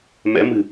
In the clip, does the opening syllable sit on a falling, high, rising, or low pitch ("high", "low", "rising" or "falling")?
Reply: rising